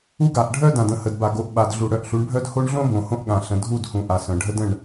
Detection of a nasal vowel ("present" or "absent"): present